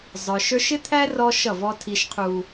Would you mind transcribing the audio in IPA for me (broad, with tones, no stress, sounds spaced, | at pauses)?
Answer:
zˤ ə˞˨ ʃ ə˞˦ ʃ ɪ˦ t̪ʰ æ˦ r ɔ˦ ʃ ʌ˦˨ v ɔ˦ tʰ i˦ ʃ qʰ u˦